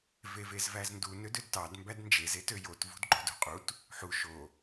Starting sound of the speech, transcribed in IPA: v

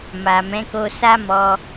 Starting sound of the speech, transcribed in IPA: m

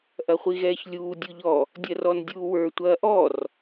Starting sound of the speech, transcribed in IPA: ʔ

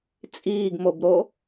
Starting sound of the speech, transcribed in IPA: t͡sʼ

